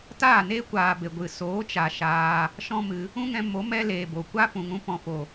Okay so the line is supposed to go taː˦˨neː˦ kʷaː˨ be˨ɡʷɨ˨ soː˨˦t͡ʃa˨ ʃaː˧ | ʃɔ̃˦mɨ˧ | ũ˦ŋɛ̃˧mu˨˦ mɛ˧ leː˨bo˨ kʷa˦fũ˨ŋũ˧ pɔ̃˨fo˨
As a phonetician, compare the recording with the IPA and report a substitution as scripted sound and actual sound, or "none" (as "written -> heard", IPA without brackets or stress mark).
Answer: u˨˦ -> o˨˦